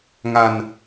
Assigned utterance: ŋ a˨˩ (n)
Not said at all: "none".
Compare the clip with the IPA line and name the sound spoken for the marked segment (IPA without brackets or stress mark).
n